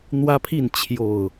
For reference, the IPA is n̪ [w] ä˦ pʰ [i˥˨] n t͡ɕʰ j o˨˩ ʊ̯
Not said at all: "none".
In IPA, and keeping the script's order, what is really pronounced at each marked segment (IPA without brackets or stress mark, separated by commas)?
w, i˥˨